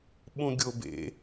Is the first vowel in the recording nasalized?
yes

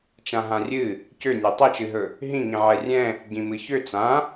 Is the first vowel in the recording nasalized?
yes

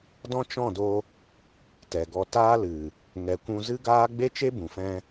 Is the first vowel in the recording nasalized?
yes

